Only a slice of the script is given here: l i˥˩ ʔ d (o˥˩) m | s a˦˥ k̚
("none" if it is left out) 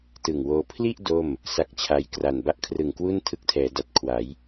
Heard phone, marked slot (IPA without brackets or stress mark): o˥˩